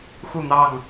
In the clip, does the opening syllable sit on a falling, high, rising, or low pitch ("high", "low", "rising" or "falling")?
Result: falling